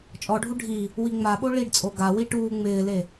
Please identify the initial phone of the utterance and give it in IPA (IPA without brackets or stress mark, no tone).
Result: t͡ʃʼ